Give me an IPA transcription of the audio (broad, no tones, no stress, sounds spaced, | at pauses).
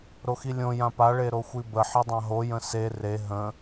ɾ o x i lʲ õ j ã p a ɭ e ɾ o xʷ i b ə ħ i dˤ ã ɦ o j ə̃ s e r e ɦ ə̃